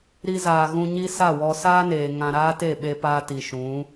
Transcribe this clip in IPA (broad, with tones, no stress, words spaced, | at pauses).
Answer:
ɾi˧zaː˨ ɣũ˧ɲi˦sa˦˨wɔ˧ saː˦neː˨ ŋã˧ ɾaː˦te˦˨ɓe˧paː˧ ti˨ʃũ˨˦